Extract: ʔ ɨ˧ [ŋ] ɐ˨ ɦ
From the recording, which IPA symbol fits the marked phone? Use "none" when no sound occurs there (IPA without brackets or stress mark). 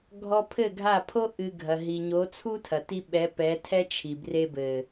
ɡʱ